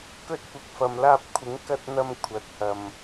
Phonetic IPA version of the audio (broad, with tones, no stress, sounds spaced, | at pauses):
k ɵ˧ t̚ kʷ ɪ˨ k̚ f ɐ˨ m l aː˧ p̚ kʷʰ ɪ˨˥ ŋ k ɐ˧ t̚ n̪ ɐ˧ m kʷʰ ɐ˨˥ t̚ h ɐ˨ m